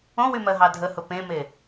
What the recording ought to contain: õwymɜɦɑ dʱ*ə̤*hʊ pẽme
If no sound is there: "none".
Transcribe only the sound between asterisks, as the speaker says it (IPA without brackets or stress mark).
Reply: ə